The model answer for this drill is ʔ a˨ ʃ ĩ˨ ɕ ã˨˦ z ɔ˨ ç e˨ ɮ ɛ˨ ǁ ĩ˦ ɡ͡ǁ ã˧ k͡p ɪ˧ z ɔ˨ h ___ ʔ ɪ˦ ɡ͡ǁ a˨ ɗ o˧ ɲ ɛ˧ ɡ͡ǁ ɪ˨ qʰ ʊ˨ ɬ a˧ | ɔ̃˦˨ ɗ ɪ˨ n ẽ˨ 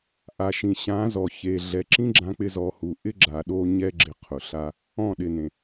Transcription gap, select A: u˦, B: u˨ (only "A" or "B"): B